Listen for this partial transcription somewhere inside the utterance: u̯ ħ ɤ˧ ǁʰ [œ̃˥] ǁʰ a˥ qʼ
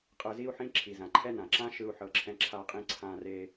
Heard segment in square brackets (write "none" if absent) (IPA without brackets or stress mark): ɛ̃˥